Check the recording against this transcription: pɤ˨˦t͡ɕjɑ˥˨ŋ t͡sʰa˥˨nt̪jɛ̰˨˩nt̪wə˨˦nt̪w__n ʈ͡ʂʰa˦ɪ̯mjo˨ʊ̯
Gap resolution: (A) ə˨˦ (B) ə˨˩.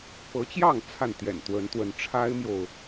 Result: A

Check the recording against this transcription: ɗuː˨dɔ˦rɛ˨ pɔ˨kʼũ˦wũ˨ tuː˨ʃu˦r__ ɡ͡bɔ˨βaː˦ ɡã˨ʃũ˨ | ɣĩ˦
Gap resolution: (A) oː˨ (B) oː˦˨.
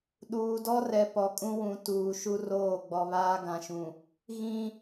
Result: B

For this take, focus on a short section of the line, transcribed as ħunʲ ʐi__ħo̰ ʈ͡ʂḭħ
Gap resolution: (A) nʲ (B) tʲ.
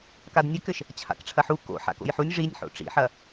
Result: A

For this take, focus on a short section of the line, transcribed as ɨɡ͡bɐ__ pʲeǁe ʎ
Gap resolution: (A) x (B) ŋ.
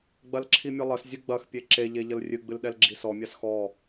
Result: A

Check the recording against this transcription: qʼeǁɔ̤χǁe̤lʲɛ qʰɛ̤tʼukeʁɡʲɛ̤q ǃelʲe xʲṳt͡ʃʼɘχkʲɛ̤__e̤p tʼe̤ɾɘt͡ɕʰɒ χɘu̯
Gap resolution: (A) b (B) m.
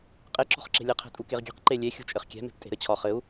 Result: B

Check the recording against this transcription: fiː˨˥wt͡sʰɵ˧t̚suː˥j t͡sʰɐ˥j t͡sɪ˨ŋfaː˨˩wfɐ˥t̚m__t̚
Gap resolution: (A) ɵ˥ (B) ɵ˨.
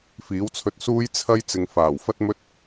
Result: A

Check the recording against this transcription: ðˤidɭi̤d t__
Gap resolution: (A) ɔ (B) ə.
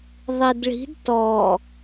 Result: A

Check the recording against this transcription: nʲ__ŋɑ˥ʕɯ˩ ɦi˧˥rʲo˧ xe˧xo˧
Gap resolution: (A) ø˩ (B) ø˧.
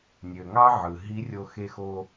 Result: A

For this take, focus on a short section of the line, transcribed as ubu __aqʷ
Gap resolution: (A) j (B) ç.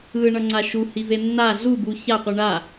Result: B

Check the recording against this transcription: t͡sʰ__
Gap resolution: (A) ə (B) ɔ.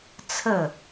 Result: A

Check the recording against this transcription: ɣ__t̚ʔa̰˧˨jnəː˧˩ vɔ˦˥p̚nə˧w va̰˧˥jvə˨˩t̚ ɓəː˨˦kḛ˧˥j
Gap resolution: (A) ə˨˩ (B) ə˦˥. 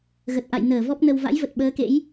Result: A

